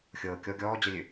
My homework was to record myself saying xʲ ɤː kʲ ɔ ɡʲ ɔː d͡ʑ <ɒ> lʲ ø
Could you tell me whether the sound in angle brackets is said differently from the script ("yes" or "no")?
yes